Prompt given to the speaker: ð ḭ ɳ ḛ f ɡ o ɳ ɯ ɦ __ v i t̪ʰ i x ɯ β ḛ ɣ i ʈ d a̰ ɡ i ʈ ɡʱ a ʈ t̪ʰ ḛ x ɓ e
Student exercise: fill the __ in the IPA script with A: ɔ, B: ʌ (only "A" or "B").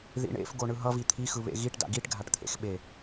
B